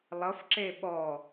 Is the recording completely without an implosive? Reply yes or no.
no